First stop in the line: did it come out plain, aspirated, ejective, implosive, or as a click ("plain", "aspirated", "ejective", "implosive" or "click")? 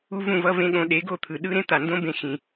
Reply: implosive